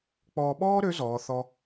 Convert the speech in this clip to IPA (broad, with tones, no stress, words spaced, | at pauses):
k͡pɔː˧ɓɔː˥ɾø˧˥ zɔː˧˥θɔ˥